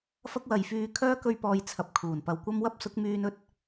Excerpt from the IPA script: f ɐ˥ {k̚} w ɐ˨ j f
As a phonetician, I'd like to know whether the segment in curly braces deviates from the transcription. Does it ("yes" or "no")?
no